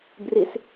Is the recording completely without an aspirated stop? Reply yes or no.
yes